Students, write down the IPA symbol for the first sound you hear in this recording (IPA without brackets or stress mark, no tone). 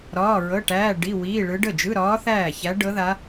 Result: ɾ